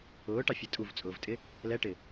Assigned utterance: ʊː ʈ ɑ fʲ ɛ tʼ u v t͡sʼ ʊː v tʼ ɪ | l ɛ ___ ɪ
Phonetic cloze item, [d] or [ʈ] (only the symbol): ʈ